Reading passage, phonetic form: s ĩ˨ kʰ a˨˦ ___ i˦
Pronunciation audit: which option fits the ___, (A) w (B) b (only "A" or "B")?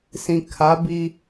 B